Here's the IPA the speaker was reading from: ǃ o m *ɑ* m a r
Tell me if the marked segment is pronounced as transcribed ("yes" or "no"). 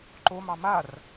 yes